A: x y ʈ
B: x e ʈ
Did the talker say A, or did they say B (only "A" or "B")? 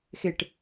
B